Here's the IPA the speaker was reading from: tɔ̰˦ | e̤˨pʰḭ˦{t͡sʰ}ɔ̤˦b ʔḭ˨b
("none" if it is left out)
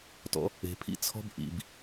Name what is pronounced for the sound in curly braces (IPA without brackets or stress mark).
t͡sʰ